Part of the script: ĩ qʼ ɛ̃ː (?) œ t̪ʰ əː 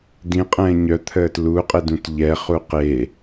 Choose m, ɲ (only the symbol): ɲ